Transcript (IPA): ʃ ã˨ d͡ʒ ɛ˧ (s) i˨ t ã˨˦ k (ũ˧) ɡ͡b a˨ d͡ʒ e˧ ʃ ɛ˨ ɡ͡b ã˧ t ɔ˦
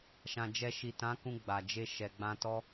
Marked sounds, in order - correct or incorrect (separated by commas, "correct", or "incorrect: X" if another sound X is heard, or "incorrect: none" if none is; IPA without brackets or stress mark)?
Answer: incorrect: ʃ, correct